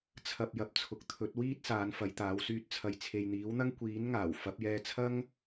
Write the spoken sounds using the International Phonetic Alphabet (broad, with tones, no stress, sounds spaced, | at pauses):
t͡sʰ ɐ˧ p̚ j ɐ˨ p̚ t͡sʰ ʊ˨˥ k̚ t̪ʰ ɵ˨˥ t̚ w iː˥ t̚ s aː˨˧ n f ɐ˨˧ j t̪ aː˨˧ w s yː˧ t̚ t͡sʰ ɐ˨ j t͡sʰ e˨ j n̪ iː˨˥ w n̪ ɐ˥ ŋ kʷ iː˨˥ n ŋ aː˨˩ w f ɐ˨˥ p̚ j ɛː˧ t͡sʰ ɐ˥ ŋ